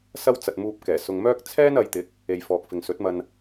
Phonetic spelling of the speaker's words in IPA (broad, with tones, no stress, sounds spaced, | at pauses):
s ɐ˥ w t͡s ɐ˨ t̚ m uː˧ p̚ k ɛː˨˩ s ʊ˨ ŋ m œː˥ k̚ t͡sʰ ɛː˥ n ɐ˨˧ j t̪ ɪ˨˥ k̚ | e˨ j f ɔː˨ k̚ f ɪ˨ ŋ s ɵ˨˥ t̚ m ɐ˧ n